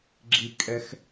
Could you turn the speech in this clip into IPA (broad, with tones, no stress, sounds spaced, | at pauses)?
ɡ͡ǁ i˥ kʼ ɛ˥ x